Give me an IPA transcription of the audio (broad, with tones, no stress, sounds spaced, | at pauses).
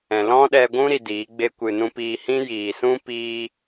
ɛ̃˨ l ɔ̃˦ ɗ ɛ˧ ɡʷ ũ˦ ɾ i˨ d iː˨˦ ɡ͡b e˦ kʷ ɨ˧ n ũ˧ p iː˧ h ĩ˦ j iː˨ s ũ˦ p iː˦